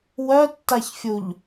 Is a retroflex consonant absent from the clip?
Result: yes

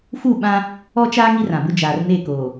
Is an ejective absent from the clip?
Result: yes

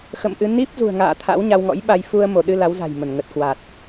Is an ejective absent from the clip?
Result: yes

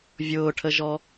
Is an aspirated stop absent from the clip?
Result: no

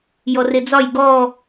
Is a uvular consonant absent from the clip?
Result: yes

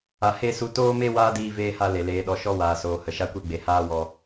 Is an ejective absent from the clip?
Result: yes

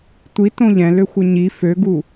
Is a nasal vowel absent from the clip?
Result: no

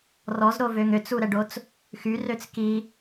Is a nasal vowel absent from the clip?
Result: yes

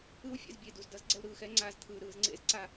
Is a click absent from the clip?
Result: no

